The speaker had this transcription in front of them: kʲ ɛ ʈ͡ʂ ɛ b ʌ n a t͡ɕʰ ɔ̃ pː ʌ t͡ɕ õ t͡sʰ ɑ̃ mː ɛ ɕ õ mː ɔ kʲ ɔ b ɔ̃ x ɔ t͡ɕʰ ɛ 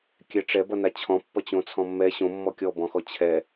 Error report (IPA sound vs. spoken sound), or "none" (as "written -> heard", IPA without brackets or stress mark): ɑ̃ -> ɔ̃